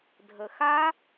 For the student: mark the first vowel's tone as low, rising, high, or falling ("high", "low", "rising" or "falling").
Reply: low